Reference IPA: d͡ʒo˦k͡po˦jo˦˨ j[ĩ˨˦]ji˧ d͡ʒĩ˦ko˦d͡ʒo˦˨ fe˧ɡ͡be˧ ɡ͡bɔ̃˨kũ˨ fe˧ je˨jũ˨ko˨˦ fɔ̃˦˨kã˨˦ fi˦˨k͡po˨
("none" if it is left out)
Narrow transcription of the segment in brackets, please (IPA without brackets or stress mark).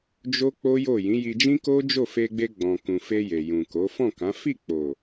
ĩ˨˦